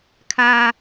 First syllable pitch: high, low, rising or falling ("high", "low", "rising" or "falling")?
high